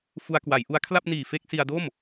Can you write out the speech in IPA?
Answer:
f u˧ a̯ k w a˩˦ j ʔ u˦˥ a̯ kʰ l a˥˩ p̚ n iː˨˩ f e˥˩ k̚ s i˧ a̯ d o˥˩ m

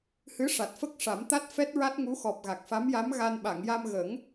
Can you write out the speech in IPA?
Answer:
h ɨ˧˥ ʂ a˨˩ t̚ f ə˦˥ k̚ ʂ a˨˩˦ m t̪ a˦˥ t̚ f ɛ˦˥ t̚ ɹ a˦˥ t̚ ŋ u˧˥ x ɔ˨˩ p̚ ɣ a˨˩ k̚ f a˧˥ m j a˧˥ m ɣ a˧ n ɓ a˨˩˨ ŋ j a˧ m ɣ ə˨˩˦ ŋ

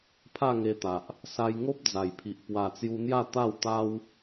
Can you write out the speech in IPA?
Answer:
pʰ a˥˧ ŋ e˧ t̪ a˨ ʔ | s a˧ j ŋ o˦ p̚ d͡z a˨˩ j pʰ i˨ ʔ p w a˨˩ t͡s j u˧ n̪ j a˥˧ t̪ a˥˧ w t̪ a˦ w

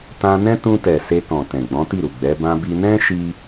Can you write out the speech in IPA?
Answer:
t ã˧ n ɛ̃˦ t ũ˧ t ɛ˨ s e˧ k ɔ̃˨ t ɛ̃˨ ɡ͡b ɔ̃˨˦ t i˦˨ ɾ u˨ ɡ͡b ɛ˨˦ b ã˧ b i˧ n ɛ̃˦ ʃ i˦

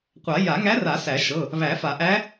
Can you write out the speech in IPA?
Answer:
qʷ a˨˩˦ j a˨˩˦ ŋ æ˧˥ r a˨˩˦ s æ˨˩˦ ʃ ɤ˩˧˩ | β æ˨˩˦ f a˨˩˦ ʔ æ˧˥

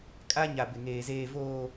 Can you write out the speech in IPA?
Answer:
kʼ a˦ ɲ a˨ b ɪ˨ ŋ eː˨ z eː˨ v oː˨

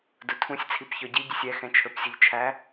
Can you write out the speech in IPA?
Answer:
d ʊ tʰ ũ sʲ t͡sʰ i p ç ɔ ɟ i ɟ ə sʲ ɛ x ɛ̃ t͡ʃʰ ə˞ p sʲ ʊ ʎ t͡ʃʰ æ

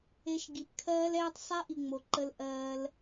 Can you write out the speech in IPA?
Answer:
e˧ ʃ ɡ i˨ p kʰ ɜː˦ l ɛː˦ tˤ sˤ ɛ˦ ʔ i˨ ŋ͡m o˨ ǃ ə˧ l ʔ ɜː˧ l

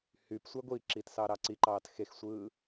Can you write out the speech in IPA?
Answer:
h y p sʷ æ ɡʷ i ǁ i t s ɑ ɾ ɑ ǀ i ǃ ɑː t x e x sʷ ɯː

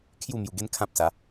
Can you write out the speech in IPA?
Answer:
kʰ j u˥˧ m j u˧ ɡ e˦ n kʰ ã˦ p̚ s a˨˦

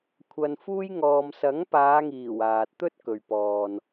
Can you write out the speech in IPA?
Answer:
kʷʰ ɐ˨ n f uː˧ j ŋ ɔː˨ m s ɐ˨˥ ŋ p aː˨˧ ŋ iː˨˩ w aː˨ t̚ t̪ ɵ˥ t̚ k ɵ˨ ɥ p ɔː˨ n

